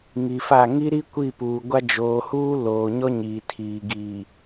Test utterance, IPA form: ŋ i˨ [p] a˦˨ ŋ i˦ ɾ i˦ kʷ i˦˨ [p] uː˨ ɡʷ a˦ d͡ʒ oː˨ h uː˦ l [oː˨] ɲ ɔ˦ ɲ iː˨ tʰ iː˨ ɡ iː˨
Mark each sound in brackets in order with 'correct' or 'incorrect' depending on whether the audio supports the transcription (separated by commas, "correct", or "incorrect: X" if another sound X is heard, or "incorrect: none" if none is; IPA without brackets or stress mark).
incorrect: f, correct, correct